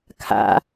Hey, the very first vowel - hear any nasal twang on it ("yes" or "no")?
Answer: no